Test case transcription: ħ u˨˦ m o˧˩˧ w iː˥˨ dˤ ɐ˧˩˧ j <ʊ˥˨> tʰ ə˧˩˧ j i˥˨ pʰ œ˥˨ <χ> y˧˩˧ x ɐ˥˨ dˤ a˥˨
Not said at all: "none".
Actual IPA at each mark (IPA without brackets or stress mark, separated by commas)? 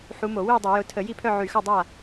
ʊ˨˦, ʕ